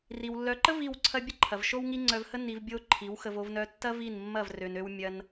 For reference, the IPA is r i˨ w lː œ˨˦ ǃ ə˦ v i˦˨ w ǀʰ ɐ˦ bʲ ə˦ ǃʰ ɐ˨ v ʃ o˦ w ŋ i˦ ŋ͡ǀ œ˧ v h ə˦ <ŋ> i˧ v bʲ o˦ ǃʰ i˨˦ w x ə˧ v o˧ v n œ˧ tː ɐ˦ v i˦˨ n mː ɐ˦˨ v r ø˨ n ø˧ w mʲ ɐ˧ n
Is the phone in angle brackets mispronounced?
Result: yes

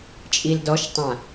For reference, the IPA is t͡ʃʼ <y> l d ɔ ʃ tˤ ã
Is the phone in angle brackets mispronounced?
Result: yes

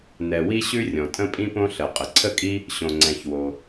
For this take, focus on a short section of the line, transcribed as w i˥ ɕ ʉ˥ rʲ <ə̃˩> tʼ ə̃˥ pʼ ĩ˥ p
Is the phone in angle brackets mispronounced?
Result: yes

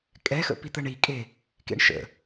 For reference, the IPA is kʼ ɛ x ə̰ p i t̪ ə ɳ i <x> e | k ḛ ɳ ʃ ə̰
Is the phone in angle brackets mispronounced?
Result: yes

